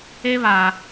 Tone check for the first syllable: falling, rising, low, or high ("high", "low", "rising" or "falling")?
high